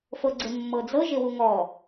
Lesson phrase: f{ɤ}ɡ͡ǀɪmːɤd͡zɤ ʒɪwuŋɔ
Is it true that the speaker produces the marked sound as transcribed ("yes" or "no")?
yes